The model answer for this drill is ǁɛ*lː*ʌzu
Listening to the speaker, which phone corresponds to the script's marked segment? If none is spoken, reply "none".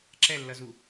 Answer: lː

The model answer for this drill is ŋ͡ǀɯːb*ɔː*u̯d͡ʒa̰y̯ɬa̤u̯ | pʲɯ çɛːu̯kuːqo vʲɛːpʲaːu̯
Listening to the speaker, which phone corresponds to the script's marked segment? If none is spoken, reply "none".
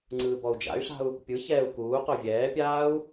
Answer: ɔ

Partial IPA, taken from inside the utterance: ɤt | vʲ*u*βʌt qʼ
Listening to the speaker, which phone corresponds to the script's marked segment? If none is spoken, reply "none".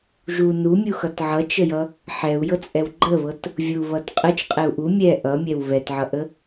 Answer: u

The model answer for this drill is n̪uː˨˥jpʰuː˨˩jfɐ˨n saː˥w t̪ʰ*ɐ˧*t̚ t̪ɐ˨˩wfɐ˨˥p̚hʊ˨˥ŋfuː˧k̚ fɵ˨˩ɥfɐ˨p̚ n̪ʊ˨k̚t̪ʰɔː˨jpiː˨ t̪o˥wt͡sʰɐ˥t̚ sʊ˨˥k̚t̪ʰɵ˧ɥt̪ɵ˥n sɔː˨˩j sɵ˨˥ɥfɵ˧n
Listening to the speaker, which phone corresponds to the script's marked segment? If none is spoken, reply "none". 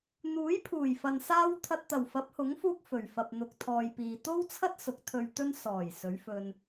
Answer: ɐ˧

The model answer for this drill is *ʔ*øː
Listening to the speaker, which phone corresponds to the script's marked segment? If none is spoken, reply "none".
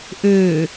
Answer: ʔ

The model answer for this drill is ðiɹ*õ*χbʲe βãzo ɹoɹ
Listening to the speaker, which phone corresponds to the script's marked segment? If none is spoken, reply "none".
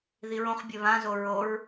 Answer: õ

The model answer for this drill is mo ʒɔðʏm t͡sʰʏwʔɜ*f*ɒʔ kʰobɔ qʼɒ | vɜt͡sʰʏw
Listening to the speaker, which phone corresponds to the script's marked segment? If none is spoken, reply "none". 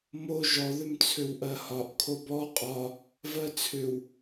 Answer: h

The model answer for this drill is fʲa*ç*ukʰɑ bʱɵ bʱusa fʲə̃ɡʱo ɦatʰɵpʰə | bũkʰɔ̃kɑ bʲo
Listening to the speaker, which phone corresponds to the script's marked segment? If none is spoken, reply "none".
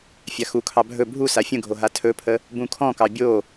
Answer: x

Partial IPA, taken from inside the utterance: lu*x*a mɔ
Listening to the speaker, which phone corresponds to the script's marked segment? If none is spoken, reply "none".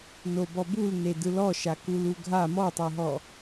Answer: ɡʱ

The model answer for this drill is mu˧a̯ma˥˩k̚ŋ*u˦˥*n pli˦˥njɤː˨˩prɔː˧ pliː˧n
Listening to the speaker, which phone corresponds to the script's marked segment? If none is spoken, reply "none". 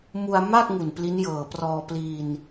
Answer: u˨˩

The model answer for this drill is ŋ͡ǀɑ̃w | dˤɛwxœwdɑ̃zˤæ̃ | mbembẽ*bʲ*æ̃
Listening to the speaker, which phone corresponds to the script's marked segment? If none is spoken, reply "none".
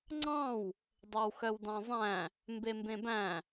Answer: b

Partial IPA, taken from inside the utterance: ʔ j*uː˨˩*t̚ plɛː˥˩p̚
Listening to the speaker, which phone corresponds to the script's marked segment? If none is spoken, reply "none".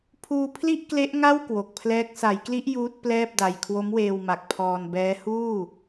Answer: uː˦˥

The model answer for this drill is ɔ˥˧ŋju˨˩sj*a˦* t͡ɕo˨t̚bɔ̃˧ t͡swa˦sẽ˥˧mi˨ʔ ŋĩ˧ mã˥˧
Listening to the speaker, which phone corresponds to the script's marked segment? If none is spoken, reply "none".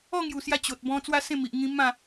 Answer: a˧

